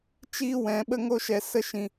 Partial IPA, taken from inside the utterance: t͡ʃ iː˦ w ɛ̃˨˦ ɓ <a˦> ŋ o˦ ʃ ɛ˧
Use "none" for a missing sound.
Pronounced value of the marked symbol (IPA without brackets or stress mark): ə˦